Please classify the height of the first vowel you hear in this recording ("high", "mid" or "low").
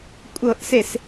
mid